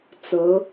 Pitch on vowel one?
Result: rising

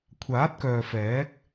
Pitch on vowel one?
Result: rising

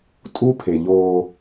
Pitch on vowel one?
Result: high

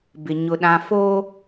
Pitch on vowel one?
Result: low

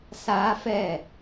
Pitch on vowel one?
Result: high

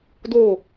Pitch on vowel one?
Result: falling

